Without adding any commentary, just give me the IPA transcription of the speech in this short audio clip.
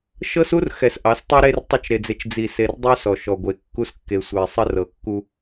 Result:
ʃ ɤ˦ s u˦ r x ɛ˨ s ʔ ɑ˨˦ s tˤ ɛ˦ ɾ e˦ r tˤ ɘ˦ t͡ʃ ɾ e˨ d͡z e˨ t͡ʃ d͡z i˨ s e˨ r dˤ u˦ s ɔ˨ ʃ ɔ˨ ɡʷ e˨˦ kː u˦ s kː e˨ sʷ ɛ˨ sˤ ɘ˦ r ɤ˨ kː u˦

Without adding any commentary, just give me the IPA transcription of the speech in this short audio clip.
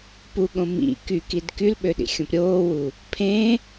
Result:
p u ɠ õ m ḭ k y k i d k y l ɓ ø ɗ ḭ xʲ õ p ɾʲ oː w u | pʰ ẽ

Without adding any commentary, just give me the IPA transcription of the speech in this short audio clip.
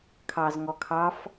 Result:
kʰ ɑ z ŋ ɔ kʰ ɑ f

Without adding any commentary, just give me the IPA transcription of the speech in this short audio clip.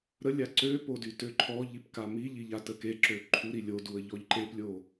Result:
ɾ ə lʲ a ǀ ø p o d y t ø ǃʰ ɔ ʎ i p k a m i ʎ i ʎ a t ə k e ǁ ø ǃʰ u ɾ i lʲ o d u ə̯ ʎ ɔ ʎ ǃ e p lʲ o

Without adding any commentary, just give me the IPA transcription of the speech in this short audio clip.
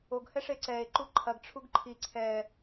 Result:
o ɡ h ɛ ʂ e ǀ ɛ e̯ ǃ u ǃʰ ɐ ɡ ʈ͡ʂʰ u ɡ ǃʰ i ǀʰ ɛ

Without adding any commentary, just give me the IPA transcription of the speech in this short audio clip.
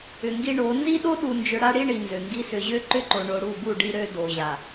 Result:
ʏ˨ ŋ ɡ i˦ ɳ o˨˦ n z i˦ ɗ o˦ ɗ u˨ n d͡ʒ ʏ˨ ɽ a˦ ɽ i˦ ɳ i˨ n z ø˨ ŋ ɡ i˦ s ʏ˨ ʑ ø˦ ǃ ʏ˦ ǃ o˨ ɳ o˨ ɽ u˦˨ b u˦˨ ɖ i˦ ɾ ø˦ d o˨ ʑ a˨

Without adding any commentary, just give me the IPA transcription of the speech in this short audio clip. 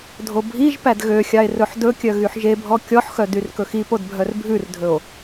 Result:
dʱ o bʱ i ʒ p æ d ɣ ø xʲ ɑ e̯ r ɵ ħ d ɵ kʲ œ ɣ y ħ ʒ e bʱ ɔ kʲ ɔ ħ x œ d y r k ɵ x i p o d bʱ œ r bʱ ʉ r dʱ ɵ o̯

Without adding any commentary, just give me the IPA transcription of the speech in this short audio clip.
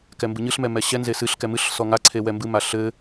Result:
k ɛ m b ɨ ɲ ɨ ɬ m ɛ m ɛ ɕ ɛ n z e s ɨ ɬ k ɛ m ɨ ɬ s ɔ ŋ a ǀʰ e w ɛ m b ɨ m a ɬ ɘ

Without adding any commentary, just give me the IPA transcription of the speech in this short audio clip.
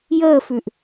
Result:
j əː f ʉ ʔ

